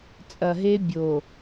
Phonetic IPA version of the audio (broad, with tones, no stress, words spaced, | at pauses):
t͡sʼɐ˨ɦe˦bʲo˨